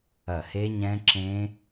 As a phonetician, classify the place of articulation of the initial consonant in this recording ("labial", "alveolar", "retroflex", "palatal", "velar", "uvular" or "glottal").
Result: glottal